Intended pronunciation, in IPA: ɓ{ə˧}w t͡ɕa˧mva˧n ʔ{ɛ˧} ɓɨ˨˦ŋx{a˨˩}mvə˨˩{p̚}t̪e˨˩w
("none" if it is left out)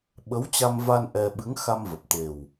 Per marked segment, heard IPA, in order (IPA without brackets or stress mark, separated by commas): ə˨˦, ɛ˧, a˧, p̚